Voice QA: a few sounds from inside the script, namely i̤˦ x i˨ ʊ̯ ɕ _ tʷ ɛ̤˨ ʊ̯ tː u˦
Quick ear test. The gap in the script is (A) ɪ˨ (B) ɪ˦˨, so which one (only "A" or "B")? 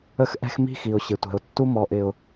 A